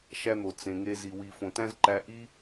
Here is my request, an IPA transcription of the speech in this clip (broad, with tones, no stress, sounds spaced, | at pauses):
ʃ æ˦ n̪ o˨ t͡s ẽ˨ ŋ e˧ z i˨ w i˨ f õ˨ t æ̃˦ z ǃ æ˧ ʔ i˦